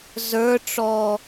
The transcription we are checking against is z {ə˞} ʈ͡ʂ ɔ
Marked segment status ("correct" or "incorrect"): correct